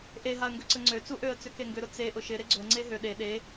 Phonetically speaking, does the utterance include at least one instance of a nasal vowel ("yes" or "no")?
no